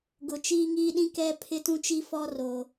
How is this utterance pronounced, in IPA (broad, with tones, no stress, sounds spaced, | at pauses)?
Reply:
ɡ ʊ˨ t͡ʃ iː˦ ŋ iː˦ ɗ ĩ˦ k ɛ˦ pʰ ɪ˦ t ũ˦ t͡ʃ i˦ f ɔ˦ r o˨